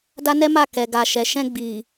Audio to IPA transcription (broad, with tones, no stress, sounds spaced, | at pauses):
d a˦ n ɛ˦ m a˦˨ k ɛ˨ ɡ a˨ ʃ ɛ˨ ʃ ɛ̃˧ ɡ͡b i˨